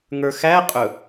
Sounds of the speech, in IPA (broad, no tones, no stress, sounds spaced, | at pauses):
ŋ ə˞ x æ qʼ ɵ